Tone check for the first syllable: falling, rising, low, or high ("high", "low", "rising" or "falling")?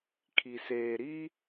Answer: low